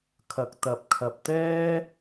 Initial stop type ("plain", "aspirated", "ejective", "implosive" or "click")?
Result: aspirated